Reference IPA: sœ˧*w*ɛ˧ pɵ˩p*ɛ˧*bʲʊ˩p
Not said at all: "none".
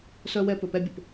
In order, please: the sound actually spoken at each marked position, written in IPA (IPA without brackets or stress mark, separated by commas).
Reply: w, ɛ˧